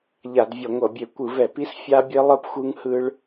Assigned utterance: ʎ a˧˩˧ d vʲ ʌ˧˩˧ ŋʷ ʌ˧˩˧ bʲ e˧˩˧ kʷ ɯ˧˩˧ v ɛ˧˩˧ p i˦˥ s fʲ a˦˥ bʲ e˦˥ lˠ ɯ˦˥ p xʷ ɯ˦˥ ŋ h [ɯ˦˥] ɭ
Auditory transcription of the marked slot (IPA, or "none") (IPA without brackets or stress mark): ɯ˦˥